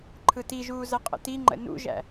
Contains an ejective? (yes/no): yes